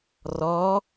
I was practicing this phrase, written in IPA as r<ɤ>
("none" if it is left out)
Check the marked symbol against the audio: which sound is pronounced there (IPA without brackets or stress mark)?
ɔ